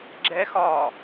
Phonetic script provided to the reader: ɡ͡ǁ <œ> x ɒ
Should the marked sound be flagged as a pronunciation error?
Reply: yes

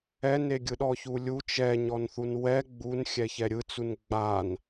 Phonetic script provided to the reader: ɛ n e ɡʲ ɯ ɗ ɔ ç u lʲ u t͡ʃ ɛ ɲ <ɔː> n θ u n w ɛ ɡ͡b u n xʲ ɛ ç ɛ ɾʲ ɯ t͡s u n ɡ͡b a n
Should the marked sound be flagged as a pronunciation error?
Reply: yes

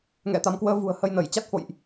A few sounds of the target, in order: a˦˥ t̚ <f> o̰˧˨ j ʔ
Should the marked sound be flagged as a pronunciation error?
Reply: no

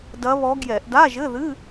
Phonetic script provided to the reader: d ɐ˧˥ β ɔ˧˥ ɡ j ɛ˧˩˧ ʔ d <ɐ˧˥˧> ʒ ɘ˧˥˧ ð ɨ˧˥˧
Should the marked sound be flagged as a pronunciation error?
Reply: yes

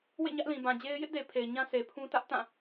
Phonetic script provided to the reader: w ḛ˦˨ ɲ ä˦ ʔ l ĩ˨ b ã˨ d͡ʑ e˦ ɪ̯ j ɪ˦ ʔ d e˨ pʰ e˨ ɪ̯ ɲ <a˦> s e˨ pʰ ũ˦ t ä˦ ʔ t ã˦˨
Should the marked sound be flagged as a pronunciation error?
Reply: yes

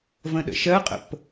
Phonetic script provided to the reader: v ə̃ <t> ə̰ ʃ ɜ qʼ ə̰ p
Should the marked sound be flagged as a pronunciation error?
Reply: yes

